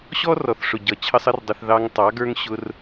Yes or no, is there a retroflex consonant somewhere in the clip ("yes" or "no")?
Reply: yes